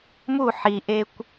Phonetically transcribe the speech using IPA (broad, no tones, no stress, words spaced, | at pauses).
mu ħiʔekʷ